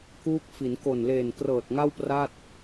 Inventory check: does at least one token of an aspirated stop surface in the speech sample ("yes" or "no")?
no